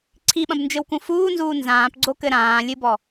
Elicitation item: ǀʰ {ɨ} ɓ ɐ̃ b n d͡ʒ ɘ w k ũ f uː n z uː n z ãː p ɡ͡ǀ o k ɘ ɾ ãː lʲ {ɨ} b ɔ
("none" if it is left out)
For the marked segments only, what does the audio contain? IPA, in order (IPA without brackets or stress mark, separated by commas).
i, ɨ